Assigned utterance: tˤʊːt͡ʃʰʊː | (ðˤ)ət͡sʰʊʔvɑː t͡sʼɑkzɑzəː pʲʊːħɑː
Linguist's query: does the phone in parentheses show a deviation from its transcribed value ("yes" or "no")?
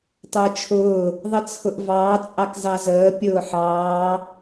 no